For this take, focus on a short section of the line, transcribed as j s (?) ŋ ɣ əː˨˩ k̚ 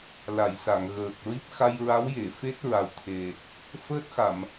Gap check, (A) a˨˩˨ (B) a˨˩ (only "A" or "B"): A